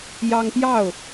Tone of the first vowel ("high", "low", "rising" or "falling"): high